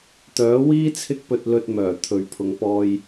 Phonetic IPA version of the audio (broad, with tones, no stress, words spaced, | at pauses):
t̪œː˨˥wiː˥ t͡sʰɪ˥k̚pɵ˧t̚lɵ˧t̚ mœː˨˩t̪ʰɵ˨ɥpʰʊ˨˧ŋpɔː˧j